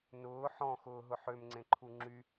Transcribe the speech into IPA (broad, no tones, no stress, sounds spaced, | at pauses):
n ʊː ħ ɔ̃ x ʊː ɦ ʊ ħ ø m ŋ͡ǀ ẽ ǃʰ u ŋ͡ǁ y